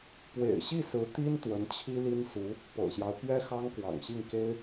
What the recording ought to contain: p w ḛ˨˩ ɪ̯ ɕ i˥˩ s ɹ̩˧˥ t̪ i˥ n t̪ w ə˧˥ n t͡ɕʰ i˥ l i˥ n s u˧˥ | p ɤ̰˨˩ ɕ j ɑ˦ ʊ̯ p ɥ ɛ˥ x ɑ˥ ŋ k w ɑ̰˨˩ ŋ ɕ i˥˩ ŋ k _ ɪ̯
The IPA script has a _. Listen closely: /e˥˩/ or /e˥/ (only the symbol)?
e˥